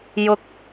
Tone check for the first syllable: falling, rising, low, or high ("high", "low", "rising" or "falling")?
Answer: high